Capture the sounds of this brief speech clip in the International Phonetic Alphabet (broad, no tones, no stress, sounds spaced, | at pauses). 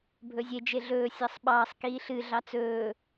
bʱ ɵ zʲ e d͡ʒ e ɮ ɵː sʲ ɑ sˤ ɓ ɑː sˤ k iː ɬ ɨ ɮ ɑ t͡s ɵː